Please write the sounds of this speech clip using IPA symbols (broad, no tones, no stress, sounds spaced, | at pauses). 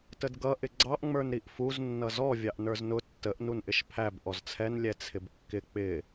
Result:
t ə d ɡ ʌ ʔ ɪ ɡ͡ǀ ɑ ʔ ŋ͡m ə˞ n ɾ i ʔ f u z nː ʌ z ɔ vʲ ɑ ʔ n ə˞ z n ʊ tː ə ʔ n u n ʔ ɪ ʃ pʰ æ b ʔ ɔ z t͡sʰ ɛ n lʲ ɛ t͡sʰ ɪ b kː ɪ k͡p ɪ